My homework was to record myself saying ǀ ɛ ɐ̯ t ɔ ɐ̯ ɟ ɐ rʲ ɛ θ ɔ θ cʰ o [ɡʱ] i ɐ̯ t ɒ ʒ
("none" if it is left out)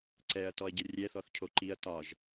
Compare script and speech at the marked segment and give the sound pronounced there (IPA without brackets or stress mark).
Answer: ǃ